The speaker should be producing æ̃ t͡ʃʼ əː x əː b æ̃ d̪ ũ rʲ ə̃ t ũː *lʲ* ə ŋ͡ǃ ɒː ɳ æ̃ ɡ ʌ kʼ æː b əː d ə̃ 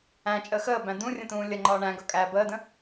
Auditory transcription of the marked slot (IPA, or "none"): lʲ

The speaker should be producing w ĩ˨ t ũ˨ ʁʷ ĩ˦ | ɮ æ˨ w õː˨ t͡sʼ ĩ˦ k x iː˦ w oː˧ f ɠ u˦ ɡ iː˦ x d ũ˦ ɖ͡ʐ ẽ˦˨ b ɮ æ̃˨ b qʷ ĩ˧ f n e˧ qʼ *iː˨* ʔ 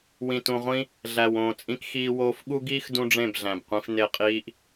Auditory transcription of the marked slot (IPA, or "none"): iː˦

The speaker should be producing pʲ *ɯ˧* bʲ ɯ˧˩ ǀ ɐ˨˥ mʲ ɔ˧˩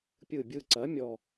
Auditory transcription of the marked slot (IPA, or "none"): ɯ˧˩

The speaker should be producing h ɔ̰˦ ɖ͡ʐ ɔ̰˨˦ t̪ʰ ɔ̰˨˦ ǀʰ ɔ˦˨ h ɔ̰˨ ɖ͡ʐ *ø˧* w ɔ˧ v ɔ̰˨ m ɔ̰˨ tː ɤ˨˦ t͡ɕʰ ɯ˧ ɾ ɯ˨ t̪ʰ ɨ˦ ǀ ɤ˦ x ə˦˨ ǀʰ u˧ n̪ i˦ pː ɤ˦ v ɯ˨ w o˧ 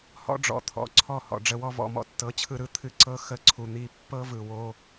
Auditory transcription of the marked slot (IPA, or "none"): ə˧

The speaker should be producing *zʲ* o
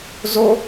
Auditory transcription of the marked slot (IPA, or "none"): z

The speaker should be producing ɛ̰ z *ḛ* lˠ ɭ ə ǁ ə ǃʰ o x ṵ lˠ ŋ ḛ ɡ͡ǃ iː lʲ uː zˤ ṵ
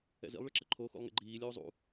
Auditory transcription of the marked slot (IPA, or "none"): ḭ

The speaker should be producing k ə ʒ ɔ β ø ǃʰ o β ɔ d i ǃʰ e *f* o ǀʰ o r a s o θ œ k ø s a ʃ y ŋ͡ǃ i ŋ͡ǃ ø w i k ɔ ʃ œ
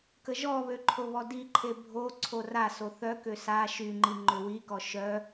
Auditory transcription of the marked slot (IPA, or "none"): bʱ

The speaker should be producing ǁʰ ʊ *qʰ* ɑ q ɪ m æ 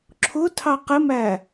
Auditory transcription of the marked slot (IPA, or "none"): tʰ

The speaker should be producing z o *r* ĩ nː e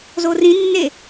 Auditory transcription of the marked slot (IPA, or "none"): r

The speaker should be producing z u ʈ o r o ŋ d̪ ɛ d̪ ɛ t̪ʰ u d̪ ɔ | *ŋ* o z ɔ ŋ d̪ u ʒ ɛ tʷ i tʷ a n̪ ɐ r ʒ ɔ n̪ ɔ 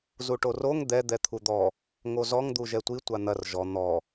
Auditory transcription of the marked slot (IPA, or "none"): ŋ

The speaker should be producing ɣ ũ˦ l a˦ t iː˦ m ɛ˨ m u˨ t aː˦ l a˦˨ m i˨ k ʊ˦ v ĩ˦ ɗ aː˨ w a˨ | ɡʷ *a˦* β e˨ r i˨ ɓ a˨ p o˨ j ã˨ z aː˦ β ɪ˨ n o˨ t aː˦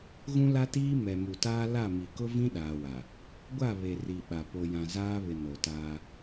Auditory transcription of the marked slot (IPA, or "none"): a˦˨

